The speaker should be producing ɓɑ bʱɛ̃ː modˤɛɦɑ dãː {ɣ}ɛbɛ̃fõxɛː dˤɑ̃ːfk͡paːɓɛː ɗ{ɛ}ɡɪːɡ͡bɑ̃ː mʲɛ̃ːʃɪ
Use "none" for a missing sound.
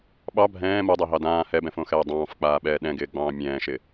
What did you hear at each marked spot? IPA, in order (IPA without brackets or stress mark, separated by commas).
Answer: h, ɛ̃